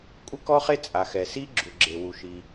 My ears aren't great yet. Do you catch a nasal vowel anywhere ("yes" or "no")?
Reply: no